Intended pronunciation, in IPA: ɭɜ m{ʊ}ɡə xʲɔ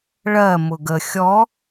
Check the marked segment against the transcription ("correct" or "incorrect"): correct